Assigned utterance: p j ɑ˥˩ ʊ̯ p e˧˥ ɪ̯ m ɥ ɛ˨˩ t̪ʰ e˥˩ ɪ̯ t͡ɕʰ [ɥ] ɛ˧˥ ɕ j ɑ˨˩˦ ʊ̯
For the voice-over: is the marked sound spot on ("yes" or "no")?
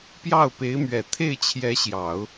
no